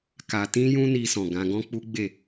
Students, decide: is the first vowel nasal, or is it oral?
oral